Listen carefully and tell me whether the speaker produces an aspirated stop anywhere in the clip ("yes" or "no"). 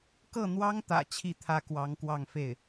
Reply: yes